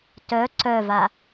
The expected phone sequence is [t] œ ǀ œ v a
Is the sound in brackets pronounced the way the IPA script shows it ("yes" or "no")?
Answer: yes